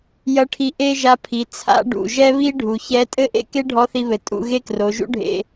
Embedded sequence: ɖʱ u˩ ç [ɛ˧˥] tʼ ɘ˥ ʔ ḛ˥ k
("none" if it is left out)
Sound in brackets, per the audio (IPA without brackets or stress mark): ɛ˧˥